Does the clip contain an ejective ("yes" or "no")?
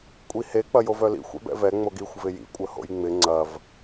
yes